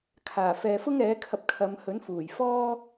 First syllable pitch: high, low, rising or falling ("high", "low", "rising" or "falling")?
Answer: low